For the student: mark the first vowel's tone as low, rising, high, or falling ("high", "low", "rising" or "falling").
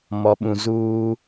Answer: low